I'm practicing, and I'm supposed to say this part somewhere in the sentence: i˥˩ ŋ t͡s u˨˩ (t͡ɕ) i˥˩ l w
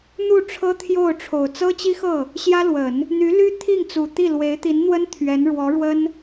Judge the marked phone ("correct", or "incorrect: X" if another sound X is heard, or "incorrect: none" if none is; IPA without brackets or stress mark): incorrect: t̪